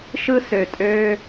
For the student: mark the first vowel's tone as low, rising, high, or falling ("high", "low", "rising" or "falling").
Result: high